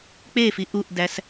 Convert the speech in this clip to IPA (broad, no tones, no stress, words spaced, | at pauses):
k͡pefi ʔuʔdæs